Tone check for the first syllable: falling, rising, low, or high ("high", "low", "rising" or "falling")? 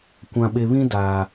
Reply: low